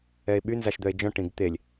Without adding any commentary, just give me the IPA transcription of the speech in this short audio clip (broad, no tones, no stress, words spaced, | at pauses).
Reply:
ɛe̯ɓy nzaʃd̪œe̯d͡ʒɔ̃ ʈĩɡt̪elʲ